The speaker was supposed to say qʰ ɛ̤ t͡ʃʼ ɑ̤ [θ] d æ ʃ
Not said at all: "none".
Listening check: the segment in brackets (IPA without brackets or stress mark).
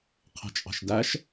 ʃ